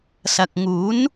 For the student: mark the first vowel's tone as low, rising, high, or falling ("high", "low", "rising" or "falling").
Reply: low